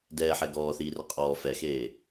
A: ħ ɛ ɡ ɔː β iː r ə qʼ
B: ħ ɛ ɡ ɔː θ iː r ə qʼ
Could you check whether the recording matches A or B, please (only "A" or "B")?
B